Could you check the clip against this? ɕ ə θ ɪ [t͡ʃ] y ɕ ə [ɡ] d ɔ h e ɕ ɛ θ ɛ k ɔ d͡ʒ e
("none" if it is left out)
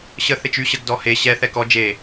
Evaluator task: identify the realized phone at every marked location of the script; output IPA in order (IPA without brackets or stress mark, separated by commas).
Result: t͡ʃ, ɡ